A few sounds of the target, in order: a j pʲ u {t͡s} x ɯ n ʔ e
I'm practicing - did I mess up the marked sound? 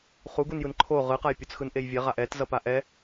no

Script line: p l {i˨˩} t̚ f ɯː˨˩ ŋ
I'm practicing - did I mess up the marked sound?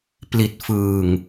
no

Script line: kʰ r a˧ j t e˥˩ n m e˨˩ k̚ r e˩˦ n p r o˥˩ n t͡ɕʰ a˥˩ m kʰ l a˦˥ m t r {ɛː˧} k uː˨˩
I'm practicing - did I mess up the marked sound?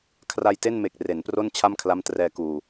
no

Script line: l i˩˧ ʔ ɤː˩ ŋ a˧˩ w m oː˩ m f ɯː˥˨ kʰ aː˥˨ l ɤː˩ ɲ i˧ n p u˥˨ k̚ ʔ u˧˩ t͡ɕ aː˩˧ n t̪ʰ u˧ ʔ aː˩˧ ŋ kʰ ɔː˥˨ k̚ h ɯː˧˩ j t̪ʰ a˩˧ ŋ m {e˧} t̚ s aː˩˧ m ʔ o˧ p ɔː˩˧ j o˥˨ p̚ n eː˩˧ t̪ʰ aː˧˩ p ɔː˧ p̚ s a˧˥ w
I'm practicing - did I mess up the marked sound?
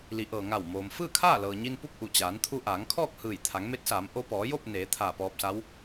yes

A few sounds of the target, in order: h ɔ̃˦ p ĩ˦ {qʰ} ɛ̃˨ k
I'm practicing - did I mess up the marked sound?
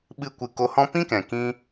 yes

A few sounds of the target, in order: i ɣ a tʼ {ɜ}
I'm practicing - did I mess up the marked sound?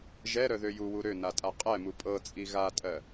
no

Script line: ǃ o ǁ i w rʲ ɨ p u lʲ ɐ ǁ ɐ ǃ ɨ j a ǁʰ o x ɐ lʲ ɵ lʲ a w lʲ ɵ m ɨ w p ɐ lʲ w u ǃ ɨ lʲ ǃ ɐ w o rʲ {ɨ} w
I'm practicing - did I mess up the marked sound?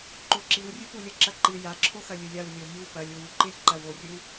no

